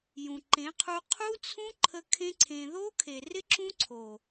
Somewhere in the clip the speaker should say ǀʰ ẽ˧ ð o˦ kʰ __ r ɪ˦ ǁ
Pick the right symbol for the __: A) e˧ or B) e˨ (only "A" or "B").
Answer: B